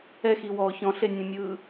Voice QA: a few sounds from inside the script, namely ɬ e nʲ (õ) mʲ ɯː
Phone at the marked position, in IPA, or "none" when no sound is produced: ũ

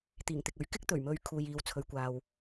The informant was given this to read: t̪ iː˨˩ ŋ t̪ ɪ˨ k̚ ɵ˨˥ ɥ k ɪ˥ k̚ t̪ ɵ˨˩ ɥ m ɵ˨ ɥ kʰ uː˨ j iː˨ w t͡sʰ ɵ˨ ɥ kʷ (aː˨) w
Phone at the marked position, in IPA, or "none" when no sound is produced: aː˨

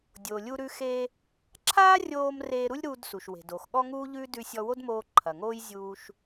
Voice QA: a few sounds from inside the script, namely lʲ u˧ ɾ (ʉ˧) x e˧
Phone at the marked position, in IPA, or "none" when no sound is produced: ʉ˧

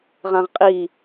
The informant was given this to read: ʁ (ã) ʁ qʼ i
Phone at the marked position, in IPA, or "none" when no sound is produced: ã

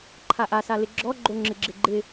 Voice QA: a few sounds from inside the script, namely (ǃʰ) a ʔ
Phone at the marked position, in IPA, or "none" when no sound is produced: ǃʰ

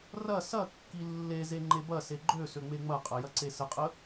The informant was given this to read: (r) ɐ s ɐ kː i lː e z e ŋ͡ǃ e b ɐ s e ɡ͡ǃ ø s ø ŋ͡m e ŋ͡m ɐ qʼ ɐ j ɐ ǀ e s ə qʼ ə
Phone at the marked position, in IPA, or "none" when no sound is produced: r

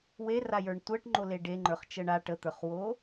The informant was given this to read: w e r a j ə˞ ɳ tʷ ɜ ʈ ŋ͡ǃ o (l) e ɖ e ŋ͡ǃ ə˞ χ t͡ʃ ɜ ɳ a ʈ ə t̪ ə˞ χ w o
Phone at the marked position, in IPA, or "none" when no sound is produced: l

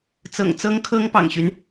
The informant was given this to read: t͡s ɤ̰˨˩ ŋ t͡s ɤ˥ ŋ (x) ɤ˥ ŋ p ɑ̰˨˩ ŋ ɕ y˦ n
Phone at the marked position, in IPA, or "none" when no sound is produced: kʰ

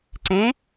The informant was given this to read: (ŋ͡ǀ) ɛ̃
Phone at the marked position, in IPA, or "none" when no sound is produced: ǀ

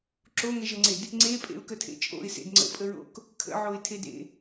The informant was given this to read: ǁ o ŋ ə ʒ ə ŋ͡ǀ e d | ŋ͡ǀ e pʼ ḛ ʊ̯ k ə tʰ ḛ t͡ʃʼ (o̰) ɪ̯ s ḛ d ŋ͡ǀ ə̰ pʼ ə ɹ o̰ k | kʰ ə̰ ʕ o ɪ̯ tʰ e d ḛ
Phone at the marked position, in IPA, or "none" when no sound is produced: o̰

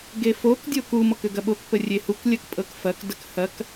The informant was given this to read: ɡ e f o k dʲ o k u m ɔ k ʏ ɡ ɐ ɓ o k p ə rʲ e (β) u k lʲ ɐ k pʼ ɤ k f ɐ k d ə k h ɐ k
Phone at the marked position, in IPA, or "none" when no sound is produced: h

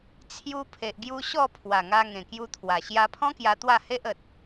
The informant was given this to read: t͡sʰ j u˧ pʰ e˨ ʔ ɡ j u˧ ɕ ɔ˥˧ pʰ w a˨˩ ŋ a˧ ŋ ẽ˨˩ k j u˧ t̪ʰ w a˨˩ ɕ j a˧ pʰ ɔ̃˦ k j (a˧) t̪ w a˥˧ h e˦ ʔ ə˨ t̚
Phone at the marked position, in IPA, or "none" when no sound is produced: a˧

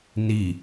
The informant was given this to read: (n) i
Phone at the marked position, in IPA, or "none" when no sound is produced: n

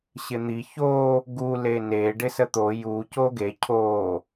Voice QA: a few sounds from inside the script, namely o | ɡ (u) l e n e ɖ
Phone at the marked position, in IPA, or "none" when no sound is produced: u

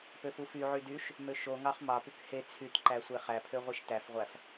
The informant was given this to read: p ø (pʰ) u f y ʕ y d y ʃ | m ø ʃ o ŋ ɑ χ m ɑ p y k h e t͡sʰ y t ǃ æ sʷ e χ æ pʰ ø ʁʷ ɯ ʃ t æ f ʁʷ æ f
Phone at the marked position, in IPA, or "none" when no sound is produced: f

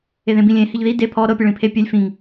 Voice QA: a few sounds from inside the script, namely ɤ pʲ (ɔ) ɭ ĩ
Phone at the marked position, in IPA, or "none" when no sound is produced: ɤ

